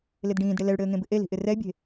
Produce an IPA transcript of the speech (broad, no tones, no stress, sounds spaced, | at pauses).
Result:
l ɪ d ɖ ĩː d ɽ ɪ l ɛ ɭ ɽ ɘː ŋ ẽ b ɪ ʔ e l i̤ ʔ ɪ r ɛ bʲ e̤